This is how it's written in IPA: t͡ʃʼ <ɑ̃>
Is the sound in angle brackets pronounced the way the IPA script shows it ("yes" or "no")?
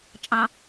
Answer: yes